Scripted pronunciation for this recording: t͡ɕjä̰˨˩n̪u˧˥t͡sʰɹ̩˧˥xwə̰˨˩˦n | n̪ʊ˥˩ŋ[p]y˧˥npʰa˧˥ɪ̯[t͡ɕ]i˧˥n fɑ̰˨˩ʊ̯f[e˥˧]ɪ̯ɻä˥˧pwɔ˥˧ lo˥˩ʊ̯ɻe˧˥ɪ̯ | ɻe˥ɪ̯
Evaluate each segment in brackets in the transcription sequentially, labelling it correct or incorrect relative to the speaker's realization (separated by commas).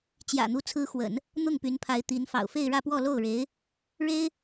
correct, incorrect, correct